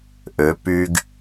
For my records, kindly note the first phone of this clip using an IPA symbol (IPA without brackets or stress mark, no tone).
ʔ